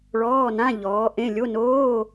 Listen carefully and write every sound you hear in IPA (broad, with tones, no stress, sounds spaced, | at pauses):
ɭ ɔː˧˥˧ n ã˧˥˧ ʎ ɔː˨˥ ʔ ẽ˧˥˧ lʲ o˧˥˧ n oː˧˥˧